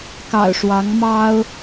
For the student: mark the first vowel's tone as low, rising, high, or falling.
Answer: low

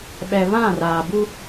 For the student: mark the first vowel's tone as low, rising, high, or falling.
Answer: low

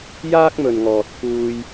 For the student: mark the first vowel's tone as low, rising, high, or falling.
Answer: high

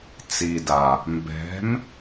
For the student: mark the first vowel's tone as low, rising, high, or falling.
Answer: low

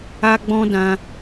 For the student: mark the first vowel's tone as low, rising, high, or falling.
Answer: high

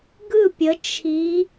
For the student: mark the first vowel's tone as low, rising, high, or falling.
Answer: falling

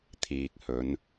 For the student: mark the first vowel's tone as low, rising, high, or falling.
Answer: low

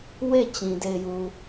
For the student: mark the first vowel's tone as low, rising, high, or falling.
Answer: falling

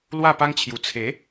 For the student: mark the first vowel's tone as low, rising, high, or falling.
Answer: falling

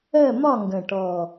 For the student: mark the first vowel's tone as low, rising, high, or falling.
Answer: falling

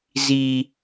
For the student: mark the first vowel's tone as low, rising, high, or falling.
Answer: high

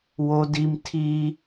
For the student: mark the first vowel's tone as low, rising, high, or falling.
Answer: high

